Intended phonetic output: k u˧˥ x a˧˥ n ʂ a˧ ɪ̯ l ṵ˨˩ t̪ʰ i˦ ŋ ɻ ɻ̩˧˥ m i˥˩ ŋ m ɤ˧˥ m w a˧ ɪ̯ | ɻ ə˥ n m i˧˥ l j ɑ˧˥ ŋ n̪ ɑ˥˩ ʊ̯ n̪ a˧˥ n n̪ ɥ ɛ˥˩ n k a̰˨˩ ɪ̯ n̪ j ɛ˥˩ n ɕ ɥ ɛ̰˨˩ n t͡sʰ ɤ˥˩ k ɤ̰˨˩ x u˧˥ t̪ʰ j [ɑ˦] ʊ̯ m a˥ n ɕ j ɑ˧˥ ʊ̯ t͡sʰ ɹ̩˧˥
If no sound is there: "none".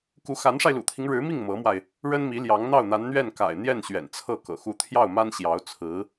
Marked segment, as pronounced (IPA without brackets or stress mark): ɑ˥˩